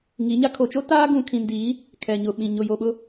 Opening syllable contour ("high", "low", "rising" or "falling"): rising